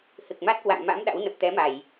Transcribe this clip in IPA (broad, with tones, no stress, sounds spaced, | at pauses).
h ɨ˨˩ k̚ m a˦˥ t̚ k w a̰˧˨ ŋ m a̰˧˥ m ɗ a̰˧˥ w n ə˨˩ p̚ t̪ ɛ˨˦ m a˧˩˨ j